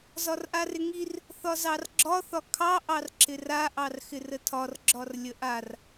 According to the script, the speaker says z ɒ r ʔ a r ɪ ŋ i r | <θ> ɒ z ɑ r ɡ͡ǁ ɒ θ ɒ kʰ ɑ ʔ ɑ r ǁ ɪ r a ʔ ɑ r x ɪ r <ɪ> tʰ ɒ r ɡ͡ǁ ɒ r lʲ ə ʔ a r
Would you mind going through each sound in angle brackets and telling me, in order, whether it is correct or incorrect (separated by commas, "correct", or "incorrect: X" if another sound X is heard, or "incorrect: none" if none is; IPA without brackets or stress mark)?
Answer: correct, incorrect: ə